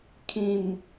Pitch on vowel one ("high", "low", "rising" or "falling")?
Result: low